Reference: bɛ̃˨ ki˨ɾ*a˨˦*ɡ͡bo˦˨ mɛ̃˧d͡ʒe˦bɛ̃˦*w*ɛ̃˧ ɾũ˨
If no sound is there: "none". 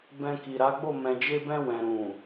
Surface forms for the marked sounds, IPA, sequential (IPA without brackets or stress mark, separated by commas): a˨˦, w